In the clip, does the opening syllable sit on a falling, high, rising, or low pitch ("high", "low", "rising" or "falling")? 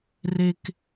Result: high